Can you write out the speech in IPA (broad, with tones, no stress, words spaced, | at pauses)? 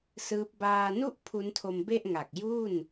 sɯː˦˥p̚ baː˧nu˥˩ʔ pʰu˦˥ntʰo˧mbe˥˩ʔŋa˨˩k̚ ju˥˩n